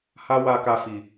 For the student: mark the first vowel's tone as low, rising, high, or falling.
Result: high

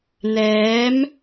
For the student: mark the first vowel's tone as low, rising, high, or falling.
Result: rising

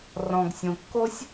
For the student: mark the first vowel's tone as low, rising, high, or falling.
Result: low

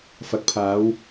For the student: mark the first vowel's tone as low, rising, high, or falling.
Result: low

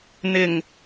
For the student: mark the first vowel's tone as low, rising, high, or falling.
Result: low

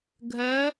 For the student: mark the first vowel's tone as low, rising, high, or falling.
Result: rising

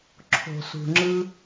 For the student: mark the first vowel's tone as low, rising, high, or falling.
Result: low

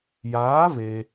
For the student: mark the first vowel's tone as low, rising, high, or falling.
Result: rising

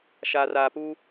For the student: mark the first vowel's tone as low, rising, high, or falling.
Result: low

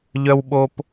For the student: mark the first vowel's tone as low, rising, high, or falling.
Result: high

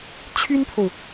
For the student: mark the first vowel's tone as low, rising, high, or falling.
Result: high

